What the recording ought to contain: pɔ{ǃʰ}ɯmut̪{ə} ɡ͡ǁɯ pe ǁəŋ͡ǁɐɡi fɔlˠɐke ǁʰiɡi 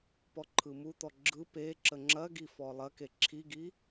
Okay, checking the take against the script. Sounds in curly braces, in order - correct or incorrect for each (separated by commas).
correct, incorrect